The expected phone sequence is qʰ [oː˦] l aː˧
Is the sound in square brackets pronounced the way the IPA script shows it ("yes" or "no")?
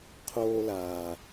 yes